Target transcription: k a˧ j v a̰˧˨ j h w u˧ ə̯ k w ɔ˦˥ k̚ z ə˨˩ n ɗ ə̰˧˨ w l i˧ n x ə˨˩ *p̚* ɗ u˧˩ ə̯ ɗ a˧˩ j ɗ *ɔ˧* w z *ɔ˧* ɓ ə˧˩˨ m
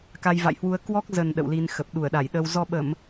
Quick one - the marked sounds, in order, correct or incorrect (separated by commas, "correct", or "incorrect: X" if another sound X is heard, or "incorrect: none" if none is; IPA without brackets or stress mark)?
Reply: correct, incorrect: ə˧, correct